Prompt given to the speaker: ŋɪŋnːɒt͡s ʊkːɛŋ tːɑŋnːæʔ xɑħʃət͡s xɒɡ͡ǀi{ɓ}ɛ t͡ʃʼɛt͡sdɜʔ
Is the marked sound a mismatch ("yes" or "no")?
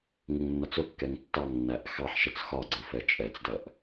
yes